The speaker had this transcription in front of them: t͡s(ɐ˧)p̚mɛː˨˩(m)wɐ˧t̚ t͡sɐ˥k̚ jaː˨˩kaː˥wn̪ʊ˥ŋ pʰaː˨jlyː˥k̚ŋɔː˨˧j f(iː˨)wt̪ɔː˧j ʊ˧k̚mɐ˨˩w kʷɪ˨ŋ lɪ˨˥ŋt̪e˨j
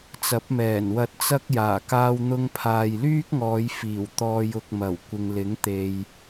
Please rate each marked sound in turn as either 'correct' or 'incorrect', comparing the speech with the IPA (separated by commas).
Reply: incorrect, incorrect, incorrect